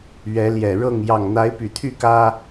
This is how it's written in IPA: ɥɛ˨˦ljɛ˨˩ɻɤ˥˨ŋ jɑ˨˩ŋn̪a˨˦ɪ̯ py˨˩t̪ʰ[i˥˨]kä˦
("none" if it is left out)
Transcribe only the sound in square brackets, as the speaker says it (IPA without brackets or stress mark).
y˥˨